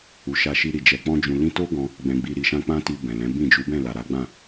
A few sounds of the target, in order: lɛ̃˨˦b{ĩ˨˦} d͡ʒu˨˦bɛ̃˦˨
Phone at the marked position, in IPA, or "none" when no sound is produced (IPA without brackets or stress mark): ĩ˦˨